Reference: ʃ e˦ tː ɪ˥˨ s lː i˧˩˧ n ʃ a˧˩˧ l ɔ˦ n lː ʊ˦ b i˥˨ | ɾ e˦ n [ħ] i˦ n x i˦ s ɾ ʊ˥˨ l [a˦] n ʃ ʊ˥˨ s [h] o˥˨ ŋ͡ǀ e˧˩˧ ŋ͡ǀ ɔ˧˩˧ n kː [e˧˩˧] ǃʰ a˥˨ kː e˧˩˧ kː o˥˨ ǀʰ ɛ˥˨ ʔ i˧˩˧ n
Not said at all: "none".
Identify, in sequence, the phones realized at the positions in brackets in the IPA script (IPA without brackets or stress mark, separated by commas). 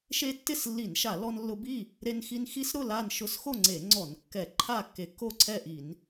x, a˥˨, x, ɛ˧˩˧